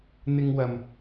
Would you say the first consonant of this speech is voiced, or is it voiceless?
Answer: voiced